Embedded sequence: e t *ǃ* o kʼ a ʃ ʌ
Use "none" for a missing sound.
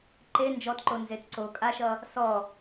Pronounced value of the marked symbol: ǀ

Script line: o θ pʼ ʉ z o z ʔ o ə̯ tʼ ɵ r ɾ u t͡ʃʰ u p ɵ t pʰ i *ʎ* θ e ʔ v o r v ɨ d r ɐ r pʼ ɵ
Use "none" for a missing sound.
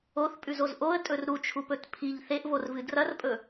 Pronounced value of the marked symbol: ʎ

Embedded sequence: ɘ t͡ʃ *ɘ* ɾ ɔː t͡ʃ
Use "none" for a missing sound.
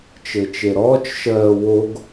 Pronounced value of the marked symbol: e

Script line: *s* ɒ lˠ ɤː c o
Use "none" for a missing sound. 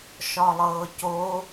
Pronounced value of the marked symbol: ʃ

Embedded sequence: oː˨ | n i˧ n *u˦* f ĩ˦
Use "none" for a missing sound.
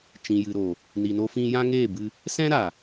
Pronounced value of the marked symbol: o˦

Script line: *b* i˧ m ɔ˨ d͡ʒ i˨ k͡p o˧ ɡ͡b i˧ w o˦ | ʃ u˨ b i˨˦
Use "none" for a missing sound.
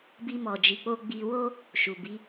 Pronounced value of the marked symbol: b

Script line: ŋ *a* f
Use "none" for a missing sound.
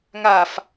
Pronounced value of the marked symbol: a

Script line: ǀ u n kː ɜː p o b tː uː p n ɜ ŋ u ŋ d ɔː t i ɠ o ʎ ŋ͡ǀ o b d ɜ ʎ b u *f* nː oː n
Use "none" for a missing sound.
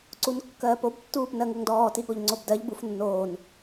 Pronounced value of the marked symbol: f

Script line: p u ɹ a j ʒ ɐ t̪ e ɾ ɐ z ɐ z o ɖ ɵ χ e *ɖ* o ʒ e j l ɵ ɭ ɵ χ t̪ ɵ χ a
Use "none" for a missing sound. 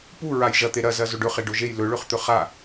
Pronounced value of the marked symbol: ɖ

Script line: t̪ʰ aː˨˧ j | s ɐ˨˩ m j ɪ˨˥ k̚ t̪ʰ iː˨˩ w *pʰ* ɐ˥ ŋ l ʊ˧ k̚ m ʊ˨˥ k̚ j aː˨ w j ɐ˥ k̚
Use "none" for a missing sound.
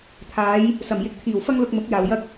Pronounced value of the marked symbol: f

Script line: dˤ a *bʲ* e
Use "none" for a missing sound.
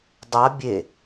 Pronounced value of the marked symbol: bʲ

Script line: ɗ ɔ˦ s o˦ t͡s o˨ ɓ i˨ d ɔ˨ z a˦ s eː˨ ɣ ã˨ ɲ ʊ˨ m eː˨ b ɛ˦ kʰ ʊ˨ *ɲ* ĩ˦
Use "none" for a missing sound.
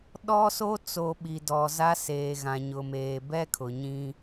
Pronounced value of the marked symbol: ɲ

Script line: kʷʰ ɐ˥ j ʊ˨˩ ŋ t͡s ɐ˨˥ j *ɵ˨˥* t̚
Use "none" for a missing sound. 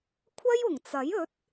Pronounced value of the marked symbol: ɵ˨˥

